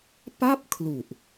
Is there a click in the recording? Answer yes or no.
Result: no